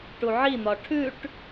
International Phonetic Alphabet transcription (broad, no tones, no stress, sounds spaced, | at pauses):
ʈ u ʕ i n̪ ɒ ʈʰ ʉ ʈ